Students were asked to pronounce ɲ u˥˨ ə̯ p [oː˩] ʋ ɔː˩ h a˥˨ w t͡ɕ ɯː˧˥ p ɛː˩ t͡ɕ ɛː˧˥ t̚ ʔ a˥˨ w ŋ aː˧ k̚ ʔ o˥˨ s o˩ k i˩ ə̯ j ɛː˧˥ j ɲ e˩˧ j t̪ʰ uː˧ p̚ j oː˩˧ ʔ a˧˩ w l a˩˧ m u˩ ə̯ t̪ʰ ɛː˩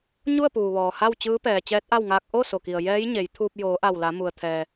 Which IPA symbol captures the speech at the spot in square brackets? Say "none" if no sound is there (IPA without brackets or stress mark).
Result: uː˩